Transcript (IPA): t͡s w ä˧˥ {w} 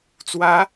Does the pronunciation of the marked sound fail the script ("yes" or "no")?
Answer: yes